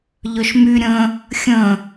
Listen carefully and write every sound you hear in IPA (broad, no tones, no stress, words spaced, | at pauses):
ʎœʃmy ɾʲə̃ | xʲə̃